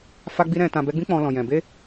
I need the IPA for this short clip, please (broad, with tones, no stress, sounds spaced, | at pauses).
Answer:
f a˧ ɡ͡b i˧ ɾ ɛ̃˨ t ã˨ b ɛ˨˦ ɡ͡b ĩ˦ k͡p ɔ̃˧ l ɔ̃˨ j ɛ̃˨ b e˧